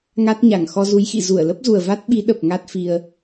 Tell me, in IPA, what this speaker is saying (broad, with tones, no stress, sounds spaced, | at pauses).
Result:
ŋ a˦˥ t̚ ɲ a˧˩ ŋ x ɔ˧ z u˨˦ j x ḭ˧˨ z u˧˩ ə̯ l ə˦˥ p̚ z u˨˩ ə̯ v a˦˥ t̚ ɓ i˨˦ ɗ ə˨˩ p̚ ŋ a˦˥ t̚ f i˧ ə̯